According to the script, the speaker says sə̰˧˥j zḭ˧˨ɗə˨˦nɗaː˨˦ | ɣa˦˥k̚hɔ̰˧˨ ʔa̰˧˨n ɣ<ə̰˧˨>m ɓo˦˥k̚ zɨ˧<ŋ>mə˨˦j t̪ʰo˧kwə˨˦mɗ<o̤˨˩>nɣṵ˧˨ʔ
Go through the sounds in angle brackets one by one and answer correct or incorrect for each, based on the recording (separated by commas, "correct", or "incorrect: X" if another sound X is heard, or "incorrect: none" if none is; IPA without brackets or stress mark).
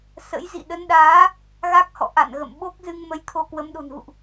correct, correct, correct